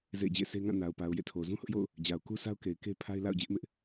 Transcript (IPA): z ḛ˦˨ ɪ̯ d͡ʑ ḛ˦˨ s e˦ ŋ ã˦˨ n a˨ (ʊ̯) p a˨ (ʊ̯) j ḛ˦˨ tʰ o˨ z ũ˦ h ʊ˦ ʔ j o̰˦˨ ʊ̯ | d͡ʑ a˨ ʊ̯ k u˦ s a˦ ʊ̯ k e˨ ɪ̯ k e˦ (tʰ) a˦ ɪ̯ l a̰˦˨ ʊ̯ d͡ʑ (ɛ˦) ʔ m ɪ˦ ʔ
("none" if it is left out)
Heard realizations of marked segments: ʊ̯, ʊ̯, pʰ, ɪ˦

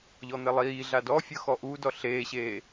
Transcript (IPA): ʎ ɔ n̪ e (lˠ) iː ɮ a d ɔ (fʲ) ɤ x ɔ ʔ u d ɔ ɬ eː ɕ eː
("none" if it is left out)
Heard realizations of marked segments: lˠ, fʲ

